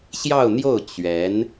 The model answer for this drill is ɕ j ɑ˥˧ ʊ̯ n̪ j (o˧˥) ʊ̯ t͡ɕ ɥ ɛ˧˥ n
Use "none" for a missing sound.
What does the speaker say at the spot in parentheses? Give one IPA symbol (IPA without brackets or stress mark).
o˥˩